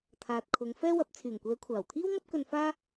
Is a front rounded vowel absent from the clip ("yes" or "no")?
no